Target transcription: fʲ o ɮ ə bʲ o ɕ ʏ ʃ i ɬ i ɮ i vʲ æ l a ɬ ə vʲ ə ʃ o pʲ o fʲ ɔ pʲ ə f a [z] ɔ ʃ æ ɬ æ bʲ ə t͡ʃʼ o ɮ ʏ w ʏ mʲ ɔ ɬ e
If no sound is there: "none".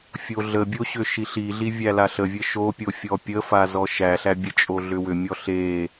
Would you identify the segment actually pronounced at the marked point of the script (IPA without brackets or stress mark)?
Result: z